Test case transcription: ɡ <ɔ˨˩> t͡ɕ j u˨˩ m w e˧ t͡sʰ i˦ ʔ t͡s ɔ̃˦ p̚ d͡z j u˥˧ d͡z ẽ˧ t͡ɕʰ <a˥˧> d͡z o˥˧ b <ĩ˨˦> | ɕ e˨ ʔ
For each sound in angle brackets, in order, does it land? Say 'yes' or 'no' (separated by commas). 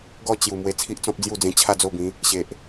no, yes, yes